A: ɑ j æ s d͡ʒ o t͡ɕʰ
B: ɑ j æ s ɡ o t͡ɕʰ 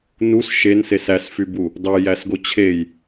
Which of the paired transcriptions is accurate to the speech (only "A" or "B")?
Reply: B